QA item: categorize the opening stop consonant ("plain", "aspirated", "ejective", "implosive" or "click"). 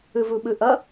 implosive